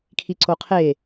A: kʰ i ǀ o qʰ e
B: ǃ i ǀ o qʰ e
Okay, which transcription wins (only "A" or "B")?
A